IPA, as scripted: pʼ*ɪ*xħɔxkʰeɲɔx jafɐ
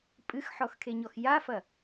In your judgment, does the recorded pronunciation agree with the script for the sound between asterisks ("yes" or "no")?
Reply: no